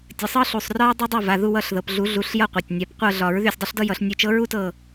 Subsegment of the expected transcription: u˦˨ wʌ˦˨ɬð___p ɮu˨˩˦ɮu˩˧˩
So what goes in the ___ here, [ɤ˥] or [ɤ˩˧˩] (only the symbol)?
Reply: ɤ˩˧˩